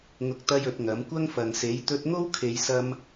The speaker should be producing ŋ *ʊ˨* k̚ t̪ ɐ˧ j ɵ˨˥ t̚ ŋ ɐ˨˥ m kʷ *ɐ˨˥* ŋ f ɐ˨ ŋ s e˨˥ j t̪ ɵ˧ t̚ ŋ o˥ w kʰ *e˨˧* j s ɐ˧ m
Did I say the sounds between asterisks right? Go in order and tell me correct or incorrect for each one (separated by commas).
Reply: incorrect, incorrect, correct